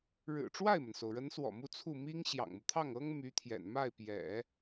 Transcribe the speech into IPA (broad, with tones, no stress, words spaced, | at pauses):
ɻɻ̩˨˩ʈ͡ʂwa˥˩ɪ̯mə˩nso˩ʊ̯ ɻə˧˥nswɔ̰˨˩ mu˥˧t͡sʰu˥˩ mi˥ŋɕjɑ̰˨˩ŋmu˦t̪ʰɑ˥˩ŋ ɤ˥ŋ my˧˥t̪ʰjɛ̰˨˩n ma˥˩ɪ̯pjɛ̰˨˩˦